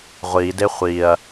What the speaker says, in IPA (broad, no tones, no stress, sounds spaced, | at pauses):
ʁʷ i d e χʷ i ɐ̯